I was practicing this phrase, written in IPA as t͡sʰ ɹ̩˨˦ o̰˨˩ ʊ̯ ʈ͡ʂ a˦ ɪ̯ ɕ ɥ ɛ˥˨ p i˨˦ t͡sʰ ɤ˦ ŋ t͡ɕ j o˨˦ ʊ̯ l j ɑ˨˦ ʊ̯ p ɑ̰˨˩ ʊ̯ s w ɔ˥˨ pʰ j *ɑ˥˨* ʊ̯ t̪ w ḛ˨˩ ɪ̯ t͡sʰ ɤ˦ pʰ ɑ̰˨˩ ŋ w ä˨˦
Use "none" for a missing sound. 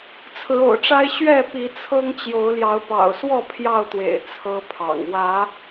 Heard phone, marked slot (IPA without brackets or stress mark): ɑ˥˨